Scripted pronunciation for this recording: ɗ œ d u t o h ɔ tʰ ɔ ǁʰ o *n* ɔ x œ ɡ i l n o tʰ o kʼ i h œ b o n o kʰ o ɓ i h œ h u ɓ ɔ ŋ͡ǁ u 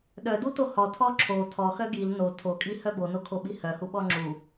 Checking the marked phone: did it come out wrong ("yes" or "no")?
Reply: yes